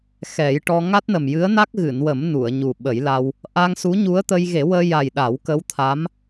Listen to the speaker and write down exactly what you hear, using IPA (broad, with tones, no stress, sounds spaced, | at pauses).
x ɛ˨˩˦ j ʈ ɔ˧ ŋ a˦˥ t̚ n ə˨˩ m j ɨ˧˥ ə̯ n a˦˥ k̚ ɣ ɨ˨˩˨ n w ə˨˩˦ m n u˨˩˨ ə̯ ɲ u˨˩ ɓ ə˨˩˦ j l a˧ w | ʔ a˧ ŋ s u˧˥ ɲ u˧˥ ə̯ t̪ ə˧ j ɣ e˨˩˦ w əː˧ j a˨˩ j ɗ a˨˩˦ w k ə˧˥ w t̪ʰ a˧˥ m